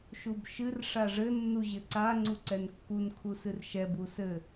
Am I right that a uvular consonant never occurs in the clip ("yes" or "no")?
yes